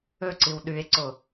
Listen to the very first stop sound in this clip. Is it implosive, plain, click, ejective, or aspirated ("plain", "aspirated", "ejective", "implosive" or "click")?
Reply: click